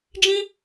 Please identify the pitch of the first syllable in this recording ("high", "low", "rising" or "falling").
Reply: high